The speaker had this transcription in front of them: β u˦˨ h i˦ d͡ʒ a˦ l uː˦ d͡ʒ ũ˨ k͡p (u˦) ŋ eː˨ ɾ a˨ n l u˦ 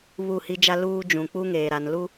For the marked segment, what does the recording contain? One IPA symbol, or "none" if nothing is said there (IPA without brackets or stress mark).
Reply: u˦